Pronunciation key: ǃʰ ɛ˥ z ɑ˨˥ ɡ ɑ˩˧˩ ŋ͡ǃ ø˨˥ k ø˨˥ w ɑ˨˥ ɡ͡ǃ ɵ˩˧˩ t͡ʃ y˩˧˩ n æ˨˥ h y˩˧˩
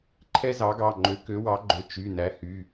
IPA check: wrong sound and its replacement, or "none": none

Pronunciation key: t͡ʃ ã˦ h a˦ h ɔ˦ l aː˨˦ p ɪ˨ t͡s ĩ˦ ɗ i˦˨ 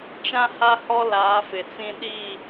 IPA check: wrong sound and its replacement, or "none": p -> f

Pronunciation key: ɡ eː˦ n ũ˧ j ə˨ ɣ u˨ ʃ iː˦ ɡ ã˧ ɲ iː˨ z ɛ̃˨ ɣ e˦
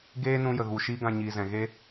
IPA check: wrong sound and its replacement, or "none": none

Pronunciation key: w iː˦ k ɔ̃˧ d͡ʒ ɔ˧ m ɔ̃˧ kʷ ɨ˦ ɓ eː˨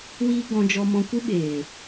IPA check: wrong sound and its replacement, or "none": k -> ɡ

